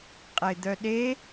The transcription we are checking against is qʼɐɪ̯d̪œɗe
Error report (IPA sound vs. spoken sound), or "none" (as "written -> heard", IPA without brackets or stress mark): none